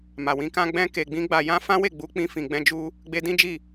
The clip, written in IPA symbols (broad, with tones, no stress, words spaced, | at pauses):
ma˨wĩ˧kã˦ ɡ͡bɛ̃˧ke˨ɡ͡bĩ˧ ɡ͡ba˨jã˧ fã˦we˦˨ɡ͡bu˧ k͡pĩ˧fĩ˨ɡ͡bɛ̃˧ d͡ʒu˦ | ɡ͡be˧dĩ˦d͡ʒi˦˨